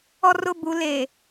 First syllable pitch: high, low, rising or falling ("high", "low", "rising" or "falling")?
high